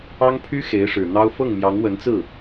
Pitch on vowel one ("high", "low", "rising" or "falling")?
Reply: high